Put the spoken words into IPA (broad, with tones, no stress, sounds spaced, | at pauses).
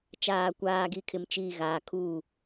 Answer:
t͡ʃ aː˨ kʷ aː˨ ɡ i˨ kʰ ɪ˨ m t͡ʃ iː˨ ɣ aː˨ kʰ uː˦˨